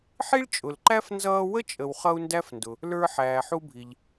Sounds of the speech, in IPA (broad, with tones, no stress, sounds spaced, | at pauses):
ħ i˥ ɭ t͡ʃʼ ʊ˨ l ǃ æ˥ f n z ʌː˦ w ə˥ t͡ʃʼ ə˨ w χ ʌ˦ u̯ n d æ˥ f n d ʊ˨ | l ə˞˦ ħ æː˨ ħ u˦ bʱ i˨ ʎ